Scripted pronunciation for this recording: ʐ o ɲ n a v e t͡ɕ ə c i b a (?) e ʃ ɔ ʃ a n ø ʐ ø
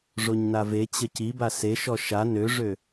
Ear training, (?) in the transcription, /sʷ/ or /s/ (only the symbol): s